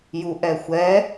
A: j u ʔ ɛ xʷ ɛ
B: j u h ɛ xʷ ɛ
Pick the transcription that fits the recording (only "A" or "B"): A